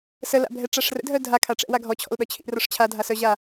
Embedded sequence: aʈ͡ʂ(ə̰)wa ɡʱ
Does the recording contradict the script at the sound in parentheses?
yes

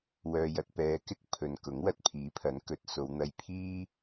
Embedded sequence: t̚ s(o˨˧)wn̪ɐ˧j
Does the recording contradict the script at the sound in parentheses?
no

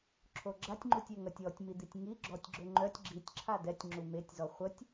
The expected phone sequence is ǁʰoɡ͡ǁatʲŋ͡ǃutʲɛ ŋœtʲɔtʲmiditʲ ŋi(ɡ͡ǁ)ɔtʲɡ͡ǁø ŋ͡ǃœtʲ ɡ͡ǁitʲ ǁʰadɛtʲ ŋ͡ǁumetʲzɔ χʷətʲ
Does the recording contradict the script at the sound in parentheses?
no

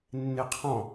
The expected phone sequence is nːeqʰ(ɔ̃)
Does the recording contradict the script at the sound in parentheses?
no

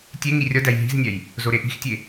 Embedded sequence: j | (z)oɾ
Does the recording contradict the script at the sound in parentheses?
no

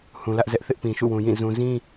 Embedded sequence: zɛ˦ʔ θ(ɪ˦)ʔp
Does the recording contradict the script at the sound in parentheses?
no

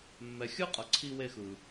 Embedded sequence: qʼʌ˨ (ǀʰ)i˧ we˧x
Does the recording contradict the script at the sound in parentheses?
no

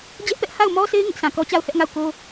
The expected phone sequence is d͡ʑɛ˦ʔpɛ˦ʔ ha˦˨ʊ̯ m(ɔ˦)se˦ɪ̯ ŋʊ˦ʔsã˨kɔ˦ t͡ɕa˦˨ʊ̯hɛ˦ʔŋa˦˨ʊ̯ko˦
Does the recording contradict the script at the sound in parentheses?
no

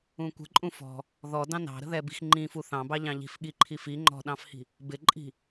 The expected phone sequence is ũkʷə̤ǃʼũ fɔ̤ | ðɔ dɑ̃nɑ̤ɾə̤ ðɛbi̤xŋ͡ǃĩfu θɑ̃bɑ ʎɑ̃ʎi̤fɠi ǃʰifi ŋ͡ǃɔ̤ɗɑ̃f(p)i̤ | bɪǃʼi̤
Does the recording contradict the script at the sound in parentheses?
yes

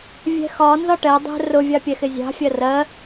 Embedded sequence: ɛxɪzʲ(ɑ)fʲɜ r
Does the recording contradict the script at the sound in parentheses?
yes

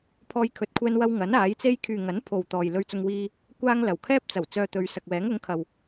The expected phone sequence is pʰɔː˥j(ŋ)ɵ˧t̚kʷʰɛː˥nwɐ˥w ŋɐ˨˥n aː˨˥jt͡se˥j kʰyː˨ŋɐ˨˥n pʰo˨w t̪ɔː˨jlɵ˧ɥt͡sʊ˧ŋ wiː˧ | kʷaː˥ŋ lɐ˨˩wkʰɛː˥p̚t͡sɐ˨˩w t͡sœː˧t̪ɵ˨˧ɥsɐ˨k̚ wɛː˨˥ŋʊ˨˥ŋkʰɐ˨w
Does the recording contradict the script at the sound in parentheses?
yes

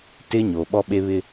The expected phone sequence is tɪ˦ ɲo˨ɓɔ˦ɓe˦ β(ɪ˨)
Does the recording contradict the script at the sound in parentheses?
yes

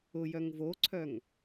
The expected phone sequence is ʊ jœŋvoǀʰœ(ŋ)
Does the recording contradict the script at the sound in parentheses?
no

